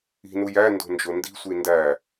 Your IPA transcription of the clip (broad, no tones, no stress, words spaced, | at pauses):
i̤nu jændo̤ nd͡ʒondi̤sʷi ndæ